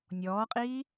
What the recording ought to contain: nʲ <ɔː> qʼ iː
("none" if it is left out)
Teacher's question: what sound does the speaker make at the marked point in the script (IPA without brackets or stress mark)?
ɔː